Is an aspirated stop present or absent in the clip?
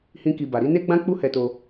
absent